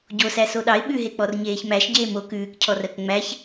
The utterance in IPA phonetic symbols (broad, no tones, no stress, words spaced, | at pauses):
ɟosæ soɗɑɪ̯ ɓʉɦek͡pɔr ɲeːçmæʃ ɟeːmo kʉːkcʰɔrɜk ŋ͡mæç